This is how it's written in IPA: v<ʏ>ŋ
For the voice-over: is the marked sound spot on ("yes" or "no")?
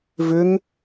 yes